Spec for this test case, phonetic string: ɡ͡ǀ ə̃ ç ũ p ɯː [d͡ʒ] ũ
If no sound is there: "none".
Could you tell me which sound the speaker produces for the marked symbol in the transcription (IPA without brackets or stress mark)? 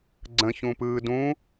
d